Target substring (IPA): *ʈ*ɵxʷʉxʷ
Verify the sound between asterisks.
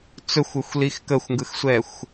incorrect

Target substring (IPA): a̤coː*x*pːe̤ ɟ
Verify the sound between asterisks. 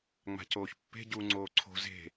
incorrect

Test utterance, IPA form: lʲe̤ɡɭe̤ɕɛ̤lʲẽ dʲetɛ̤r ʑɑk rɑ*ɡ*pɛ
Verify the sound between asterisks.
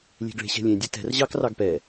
correct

